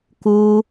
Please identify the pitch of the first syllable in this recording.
high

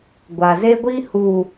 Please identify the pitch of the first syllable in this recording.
low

